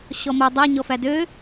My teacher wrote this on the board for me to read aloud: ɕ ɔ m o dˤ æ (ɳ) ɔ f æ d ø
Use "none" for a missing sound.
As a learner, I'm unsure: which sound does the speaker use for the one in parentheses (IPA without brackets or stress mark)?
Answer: ɲ